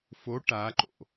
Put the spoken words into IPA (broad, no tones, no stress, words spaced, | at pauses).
fo ʈaǃo̰